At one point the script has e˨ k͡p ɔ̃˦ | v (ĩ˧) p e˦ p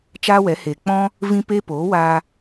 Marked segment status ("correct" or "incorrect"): incorrect